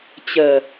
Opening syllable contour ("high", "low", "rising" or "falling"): low